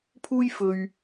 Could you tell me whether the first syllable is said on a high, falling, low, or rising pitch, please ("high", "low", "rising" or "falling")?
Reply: high